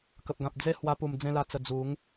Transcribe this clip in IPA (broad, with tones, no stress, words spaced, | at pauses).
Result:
kə˨p̚ɡã˨p̚ d͡ze˥˧hwa˧pu˨˩m d͡zẽ˧la˨˩t͡sə˨˩ d͡zu˨˦ŋ